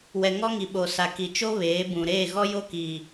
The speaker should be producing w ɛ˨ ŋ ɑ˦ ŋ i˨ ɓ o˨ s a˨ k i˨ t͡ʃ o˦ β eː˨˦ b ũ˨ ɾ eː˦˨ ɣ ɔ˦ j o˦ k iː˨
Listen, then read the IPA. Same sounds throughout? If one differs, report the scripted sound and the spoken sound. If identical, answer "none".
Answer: ɑ˦ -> ɔ˦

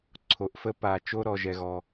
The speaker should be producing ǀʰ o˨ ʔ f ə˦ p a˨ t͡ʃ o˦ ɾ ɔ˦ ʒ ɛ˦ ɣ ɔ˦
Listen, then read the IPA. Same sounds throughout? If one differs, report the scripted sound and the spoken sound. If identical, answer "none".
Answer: none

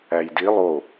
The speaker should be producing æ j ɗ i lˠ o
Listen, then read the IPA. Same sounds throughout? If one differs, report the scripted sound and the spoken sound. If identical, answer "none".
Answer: ɗ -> d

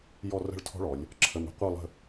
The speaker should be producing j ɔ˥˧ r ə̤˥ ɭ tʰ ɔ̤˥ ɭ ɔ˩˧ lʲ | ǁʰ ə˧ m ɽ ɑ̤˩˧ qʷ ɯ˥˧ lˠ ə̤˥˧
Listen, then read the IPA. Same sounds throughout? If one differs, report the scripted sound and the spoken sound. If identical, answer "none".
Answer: ɑ̤˩˧ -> ə̤˩˧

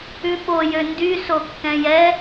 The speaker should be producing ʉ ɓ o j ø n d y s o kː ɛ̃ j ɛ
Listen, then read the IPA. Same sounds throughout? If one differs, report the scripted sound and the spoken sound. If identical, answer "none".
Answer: none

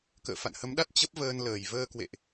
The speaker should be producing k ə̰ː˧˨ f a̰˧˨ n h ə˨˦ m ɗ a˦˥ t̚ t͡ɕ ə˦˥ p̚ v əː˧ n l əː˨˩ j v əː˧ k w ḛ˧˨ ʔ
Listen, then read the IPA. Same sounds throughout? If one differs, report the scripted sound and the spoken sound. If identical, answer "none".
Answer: none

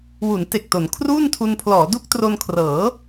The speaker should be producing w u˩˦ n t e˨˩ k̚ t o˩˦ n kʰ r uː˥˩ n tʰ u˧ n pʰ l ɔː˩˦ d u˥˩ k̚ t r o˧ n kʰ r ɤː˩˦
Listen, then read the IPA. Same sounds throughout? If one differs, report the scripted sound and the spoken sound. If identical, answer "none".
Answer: none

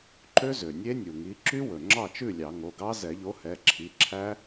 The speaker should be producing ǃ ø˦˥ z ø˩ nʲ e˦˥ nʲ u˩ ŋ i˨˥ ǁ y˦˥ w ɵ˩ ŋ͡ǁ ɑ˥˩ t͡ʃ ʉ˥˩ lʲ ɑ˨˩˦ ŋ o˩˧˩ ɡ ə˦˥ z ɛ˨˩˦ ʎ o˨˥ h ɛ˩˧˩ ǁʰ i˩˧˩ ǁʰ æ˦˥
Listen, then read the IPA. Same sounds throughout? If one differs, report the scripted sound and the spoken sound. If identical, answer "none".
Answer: ə˦˥ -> ɑ˦˥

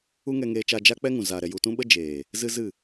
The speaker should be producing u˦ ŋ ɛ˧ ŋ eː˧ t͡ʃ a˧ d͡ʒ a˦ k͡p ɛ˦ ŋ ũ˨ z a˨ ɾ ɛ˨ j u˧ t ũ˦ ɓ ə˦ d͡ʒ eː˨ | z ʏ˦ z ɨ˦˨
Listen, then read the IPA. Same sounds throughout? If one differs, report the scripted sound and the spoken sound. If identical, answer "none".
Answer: ʏ˦ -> ɨ˦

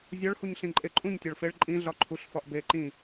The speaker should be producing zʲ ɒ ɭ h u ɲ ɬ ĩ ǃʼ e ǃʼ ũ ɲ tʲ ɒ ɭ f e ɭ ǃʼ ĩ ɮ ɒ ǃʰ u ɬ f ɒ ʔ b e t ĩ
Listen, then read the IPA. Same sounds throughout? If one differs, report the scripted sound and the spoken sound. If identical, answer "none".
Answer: t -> ǃ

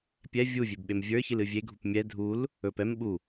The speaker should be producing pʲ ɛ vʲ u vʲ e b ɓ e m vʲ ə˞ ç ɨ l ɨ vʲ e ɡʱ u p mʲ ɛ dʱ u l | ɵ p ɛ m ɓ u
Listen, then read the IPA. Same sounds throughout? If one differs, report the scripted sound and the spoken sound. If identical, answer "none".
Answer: none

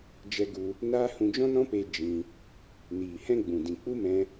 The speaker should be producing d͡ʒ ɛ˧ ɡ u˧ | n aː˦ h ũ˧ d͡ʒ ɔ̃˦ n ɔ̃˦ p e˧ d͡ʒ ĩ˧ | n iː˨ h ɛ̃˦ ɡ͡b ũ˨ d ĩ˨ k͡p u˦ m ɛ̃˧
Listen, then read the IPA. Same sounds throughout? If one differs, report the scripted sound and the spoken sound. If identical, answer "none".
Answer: none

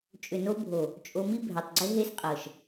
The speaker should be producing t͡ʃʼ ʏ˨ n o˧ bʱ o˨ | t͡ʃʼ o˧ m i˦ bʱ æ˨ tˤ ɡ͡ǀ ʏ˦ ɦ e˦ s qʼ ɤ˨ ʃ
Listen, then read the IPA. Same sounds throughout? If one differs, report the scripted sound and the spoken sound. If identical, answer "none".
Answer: none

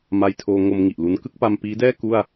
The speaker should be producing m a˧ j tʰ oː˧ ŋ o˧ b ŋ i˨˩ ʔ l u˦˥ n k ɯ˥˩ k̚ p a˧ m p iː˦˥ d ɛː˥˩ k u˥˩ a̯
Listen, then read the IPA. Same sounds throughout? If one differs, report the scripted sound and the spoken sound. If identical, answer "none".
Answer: b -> m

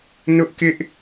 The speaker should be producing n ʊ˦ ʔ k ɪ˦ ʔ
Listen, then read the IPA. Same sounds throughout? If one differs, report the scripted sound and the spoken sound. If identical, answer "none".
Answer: none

